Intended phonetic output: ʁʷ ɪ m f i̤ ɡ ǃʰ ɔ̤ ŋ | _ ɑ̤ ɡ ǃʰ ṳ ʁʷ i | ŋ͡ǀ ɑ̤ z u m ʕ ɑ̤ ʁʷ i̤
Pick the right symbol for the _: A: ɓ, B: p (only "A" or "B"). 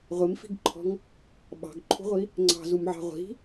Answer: A